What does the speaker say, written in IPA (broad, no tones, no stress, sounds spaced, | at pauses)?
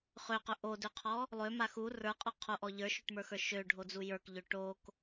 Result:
χ ø q ɵ ʔ o d ø qʰ ɔ | lˠ ø m a x u r ə˞ qʼ ɔ qʰ o ʔ ɔ ʎ ə˞ ʃ ø ʈ m ə˞ x ə˞ ʃ ø ɖʱ o d͡z u j ə˞ k ʎ ø ʈ o k